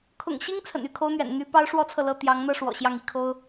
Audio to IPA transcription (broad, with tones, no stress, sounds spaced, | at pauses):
kʰ ʊ̰˨˩ ŋ ɕ i˥ ŋ t͡sʰ ə̰˨˩ n y˧˥ kʰ o˥ ʊ̯ n̪ ɥ ɛ̰˨˩ n n̪ y˥ p ɑ˥ ʊ̯ ʂ w ɔ˥ t͡sʰ ɤ˨ l ɤ˥˩ t̪ j ɑ˧˥ ŋ n̪ ɤ˥˩ ʂ w ɔ̰˨˩ ɕ j ɑ˥˩ ŋ i˥ kʰ o˥ ʊ̯